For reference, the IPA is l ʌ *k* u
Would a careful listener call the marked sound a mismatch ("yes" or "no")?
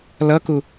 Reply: no